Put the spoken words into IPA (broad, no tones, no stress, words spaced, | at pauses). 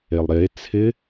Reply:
elˠɾe t͡sʰɪ